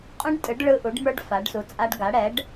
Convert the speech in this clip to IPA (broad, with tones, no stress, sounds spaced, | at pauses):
qʼ ũ˦˥ ɖ tʼ ɯ˩˥ ɖ ɭ ɯ˧˥˧ ʔ u˩˥ ɖ m ə˞˦˥ ɖ f a˩˥ ɖ s u˩˥ t͡sʼ a˦˥ ɖ ɡ a˩˥ ɽ ɛ˩˥ ɖ